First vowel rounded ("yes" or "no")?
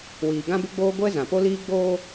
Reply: no